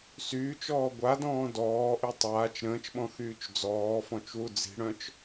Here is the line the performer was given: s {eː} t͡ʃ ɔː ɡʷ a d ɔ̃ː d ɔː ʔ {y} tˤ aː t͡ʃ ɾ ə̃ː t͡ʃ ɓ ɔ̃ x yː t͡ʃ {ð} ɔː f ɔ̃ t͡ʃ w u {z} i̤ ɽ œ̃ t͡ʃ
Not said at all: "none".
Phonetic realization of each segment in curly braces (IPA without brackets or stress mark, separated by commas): yː, y, d͡z, d͡z